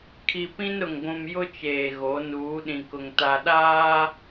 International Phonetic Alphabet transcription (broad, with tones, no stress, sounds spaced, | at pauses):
kʰ i˨ p ĩ˦ n ɾ ʊ˨ ŋ ɡʷ ũ˨ m j ʊ˦ t͡ʃ eː˨ ɣ o˨˦ n uː˨˦ ɗ ĩ˨ k ʊ˨ ŋ t a˨ ɗ aː˦